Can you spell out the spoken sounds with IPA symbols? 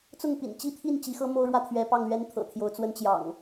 t͡s ʊ˥˨ ŋ p ḭ˨˩ n t͡ɕ i˥˨ t̪ʰ i˥˨ n t͡ɕ i˨˦ x ɤ˦ m o˦ ʊ̯ ɻ w ä˦ t̪ʰ ɥ ɛ˨˦ p ɑ˥˨ ŋ l ɥ ɛ˦ n t̪ʰ ɤ̰˨˩ t̪ʰ j o˨˦ ʊ̯ t͡s w ə˨˦ n t͡ɕ j ɑ̰˨˩ ŋ

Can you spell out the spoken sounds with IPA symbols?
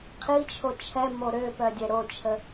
qʰ i t͡ʃʰ o t͡ʃʰ ɛ m o ɾ ø p œ dʲ ɛ ɾ o t͡ʃʰ ə

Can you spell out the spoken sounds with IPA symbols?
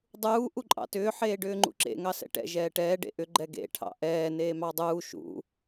dˤ uː ʔ u ǃʼ ɑ̰ t ʏː ħ eː ɖ ʏː ŋ͡ǃ ṵ ǁ ḛ ŋ ɑ s ɛ̰ ʈ ɛ̰ ʒ ɛː ʈ ɛː ɖ ḛ ʔ ʏ ɡ͡ǃ ɛ ɡ ḛ ʈʰ ɑ̰ ʔ ɛː n eː m ɑ dˤ uː ʃ ṵ

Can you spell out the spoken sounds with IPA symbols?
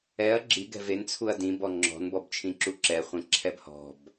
ɛ ɐ̯ ɡ͡ǁ i ɡ ɛ̤ v e n t͡sʰ u ɐ̯ d ĩ b ɔ ŋ͡ǁ ɔ̤ n b ɔ b t͡ʃʰ ĩ ǁ u ǁ ɛ χʷ ẽ ǁʰ ɛ b h ɔ̤ b

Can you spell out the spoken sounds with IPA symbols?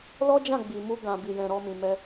l ɔ˦ d͡ʒ ã˦˨ ɡ͡b i˨ m u˧ ɡ ã˨ b i˨ j ɛ̃˨ ɾ ɔ˧ m ĩ˨ m ɛ˧

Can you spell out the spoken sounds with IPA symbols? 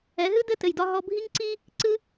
ɛ˩˥ ɦ ɨ˥ d ɘ˥˩ t ɘ˩ j d ɒ˧ ɦ ɔ˧ bʱ i˥ ŋ ǀ i˥ | ǀ ɨ˥

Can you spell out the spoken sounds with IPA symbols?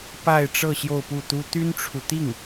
p a˥˧ ɪ̯ ʈ͡ʂ ɤ˥˧ ɕ j o˥˧ ʊ̯ p u˥˩ t̪ u˥ t̪ y˥ n ʈ͡ʂʰ u˨ t̪ i˥˩ ŋ

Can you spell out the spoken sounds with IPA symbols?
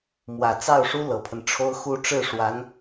m w ä˨˩ t͡s ɑ˥˩ ʊ̯ ʂ u˥ l ɤ˨˩ pʰ ə˦ n ʈ͡ʂʰ o˥ ʊ̯ x u˥ ʈ͡ʂ ɻ̩˥˩ ʂ w a˧˥ n

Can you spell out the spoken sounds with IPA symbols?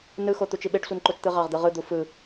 n ɯ x o t̪ u t͡ʃ i ɓ e ɖ sʷ ɯ n ǃ o t͡ʃ t̪ ɯ ʁ ɑ ʁ d̪ ɯ ʁ ɯ d̪ u f ɯ

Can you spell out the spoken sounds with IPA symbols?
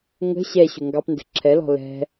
ŋ ə̤ ɕ ɛ ɕ ʊ ŋ ɡ ɑ p n d ə̤ ǁʰ ɛ l ɔ̤ l ɛ̤

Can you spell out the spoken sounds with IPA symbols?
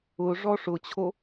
ʊ ʐ ɔ ʂ ʊ t͡ɕʰ o

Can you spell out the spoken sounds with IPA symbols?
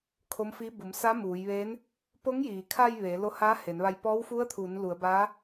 kʰ o˧˥ m f i˧˥ b u˩˧ m s a˧˥ m uː˩˧ j ʋ eː˧˥ n | p o˧˥ ŋ j iː˩ kʰ a˧ j ʋ eː˩˧ l o˧ h aː˧˥ h e˩˧ n ʋ a˧ j p ɔː˧˥ w f u˧˥ ə̯ t̪ʰ uː˩˧ n l u˩˧ ə̯ b aː˧˥

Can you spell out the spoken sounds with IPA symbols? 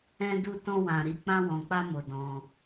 ɛ̃˧ d u˧ t ɔ̃˧ w ã˨ ɾ i˧ k͡p ã˧ w ɔ̃˨ k͡p a˧ m o˨ d ɔ̃˧

